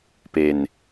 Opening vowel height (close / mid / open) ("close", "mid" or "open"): mid